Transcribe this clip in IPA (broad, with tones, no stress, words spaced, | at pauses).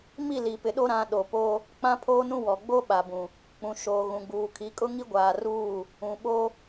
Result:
mi˦˨li˨pɪ˨ ɗo˦ɾã˨˦ ɗo˨po˦ | k͡pã˦pʰoː˦nũ˦wɔ˨ ɡ͡bo˦ɓa˨bũ˨ | k͡pũ˨ ʃoː˨ɣũ˨ɡ͡buː˨kʰi˨˦ kʼʊ˦ŋi˦ɡʷaː˨ruː˦˨ | ũ˨ ɓo˦